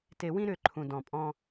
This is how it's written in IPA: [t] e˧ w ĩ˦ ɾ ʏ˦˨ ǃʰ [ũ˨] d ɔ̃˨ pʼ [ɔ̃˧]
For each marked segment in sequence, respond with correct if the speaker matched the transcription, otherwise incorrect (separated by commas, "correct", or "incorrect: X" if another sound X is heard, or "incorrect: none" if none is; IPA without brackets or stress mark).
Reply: correct, correct, correct